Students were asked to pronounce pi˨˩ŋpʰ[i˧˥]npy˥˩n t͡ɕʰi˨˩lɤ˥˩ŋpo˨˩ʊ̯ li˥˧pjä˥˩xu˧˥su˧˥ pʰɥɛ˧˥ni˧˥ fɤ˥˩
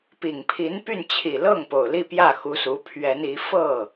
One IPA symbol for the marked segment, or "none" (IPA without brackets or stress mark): i˧˥